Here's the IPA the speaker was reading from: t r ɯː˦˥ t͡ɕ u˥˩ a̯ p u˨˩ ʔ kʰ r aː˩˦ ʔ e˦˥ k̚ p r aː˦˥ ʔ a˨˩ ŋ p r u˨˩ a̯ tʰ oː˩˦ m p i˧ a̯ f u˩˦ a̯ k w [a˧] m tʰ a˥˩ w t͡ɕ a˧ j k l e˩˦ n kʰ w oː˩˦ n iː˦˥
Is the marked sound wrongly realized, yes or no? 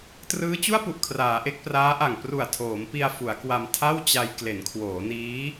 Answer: no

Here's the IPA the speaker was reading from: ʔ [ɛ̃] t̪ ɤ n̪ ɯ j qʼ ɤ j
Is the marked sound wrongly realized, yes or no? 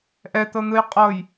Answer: yes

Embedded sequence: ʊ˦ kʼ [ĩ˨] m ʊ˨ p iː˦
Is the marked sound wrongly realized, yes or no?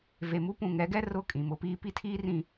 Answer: no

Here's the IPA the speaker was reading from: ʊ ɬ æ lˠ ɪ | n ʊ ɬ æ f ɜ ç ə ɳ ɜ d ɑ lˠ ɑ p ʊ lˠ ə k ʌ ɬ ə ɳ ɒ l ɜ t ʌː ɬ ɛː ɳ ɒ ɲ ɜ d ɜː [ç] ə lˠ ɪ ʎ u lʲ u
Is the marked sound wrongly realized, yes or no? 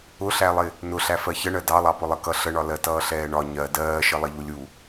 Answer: yes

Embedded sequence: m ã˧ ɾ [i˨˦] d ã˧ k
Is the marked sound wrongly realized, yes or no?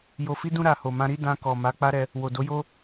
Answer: yes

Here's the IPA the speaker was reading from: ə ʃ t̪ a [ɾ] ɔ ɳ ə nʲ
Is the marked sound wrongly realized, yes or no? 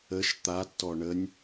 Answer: yes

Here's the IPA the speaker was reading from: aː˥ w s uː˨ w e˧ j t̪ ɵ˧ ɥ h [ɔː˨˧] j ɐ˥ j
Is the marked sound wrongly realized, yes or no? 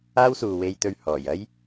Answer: yes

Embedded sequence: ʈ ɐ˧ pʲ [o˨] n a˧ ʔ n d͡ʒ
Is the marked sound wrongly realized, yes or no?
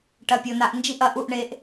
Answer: no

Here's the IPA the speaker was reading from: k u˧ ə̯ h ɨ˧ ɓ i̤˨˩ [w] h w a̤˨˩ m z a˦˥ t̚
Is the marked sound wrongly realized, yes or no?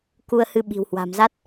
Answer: no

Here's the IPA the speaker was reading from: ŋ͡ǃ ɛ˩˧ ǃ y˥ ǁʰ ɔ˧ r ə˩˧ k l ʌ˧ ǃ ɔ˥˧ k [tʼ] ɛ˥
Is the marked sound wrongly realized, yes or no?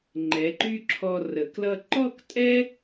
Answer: no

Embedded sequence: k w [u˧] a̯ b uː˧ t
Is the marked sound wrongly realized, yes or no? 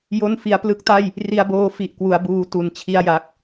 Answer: yes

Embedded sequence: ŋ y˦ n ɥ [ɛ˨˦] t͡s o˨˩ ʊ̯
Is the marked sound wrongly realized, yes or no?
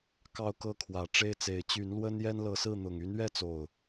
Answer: yes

